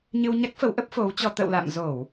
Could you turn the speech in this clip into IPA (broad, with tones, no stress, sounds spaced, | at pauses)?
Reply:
ɲ ɨ˧ w ɲ a˦˥ k̚ f ə˨˦ w ʔ ə˦˥ p̚ f o˨˦ w t͡ɕ ɔ˧ t̪ ə̰˧˨ w l a̰˧˨ m z o˧˩˨ w